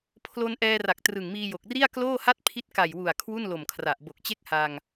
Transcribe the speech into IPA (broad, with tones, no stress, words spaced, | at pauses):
pʰlo˧n ʔɛː˧ra˨˩k̚ trɯ˨˩ŋmiː˧jo˨˩k̚ri˥˩a̯ kloː˥˩ha˥˩t̚ pʰi˦˥t̚ka˨˩jwu˨˩a̯ kʰwu˥˩nlo˨˩mkʰra˨˩ʔ bo˨˩k̚t͡ɕe˥˩k̚ha˧ŋ